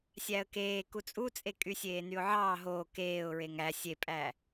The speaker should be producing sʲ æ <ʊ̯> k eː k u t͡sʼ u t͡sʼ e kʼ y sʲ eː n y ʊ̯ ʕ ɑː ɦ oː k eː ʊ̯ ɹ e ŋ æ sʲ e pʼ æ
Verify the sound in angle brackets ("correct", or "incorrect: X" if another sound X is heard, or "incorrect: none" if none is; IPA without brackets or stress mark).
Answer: incorrect: ə̯